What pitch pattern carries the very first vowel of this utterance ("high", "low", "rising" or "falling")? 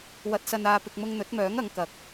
rising